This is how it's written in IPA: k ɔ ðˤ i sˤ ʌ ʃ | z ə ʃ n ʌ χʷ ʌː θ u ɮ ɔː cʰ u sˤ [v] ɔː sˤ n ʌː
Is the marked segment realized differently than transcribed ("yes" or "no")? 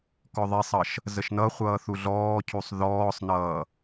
yes